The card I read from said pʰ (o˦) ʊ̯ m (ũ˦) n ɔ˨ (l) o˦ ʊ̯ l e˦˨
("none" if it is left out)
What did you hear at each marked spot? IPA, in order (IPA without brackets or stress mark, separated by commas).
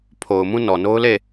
o˨, ũ˦, n